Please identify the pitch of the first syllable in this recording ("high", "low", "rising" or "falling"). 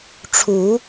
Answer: rising